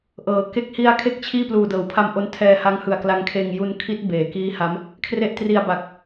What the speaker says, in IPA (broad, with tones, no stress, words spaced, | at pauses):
ʔɤː˩˦ke˥˩k̚ hi˧a̯ kʰe˥˩k̚t͡ɕʰiː˥˩ pluː˨˩dɤː˩˦wpʰa˧mʔo˧n tʰɛː˧ha˦˥ŋ hɯ˨˩a̯kla˧ŋkʰeː˧ŋ ju˧nkʰi˦˥t̚ beː˩˦kiː˦˥ha˦˥m | kʰre˦˥ʔtri˧a̯ba˨˩k̚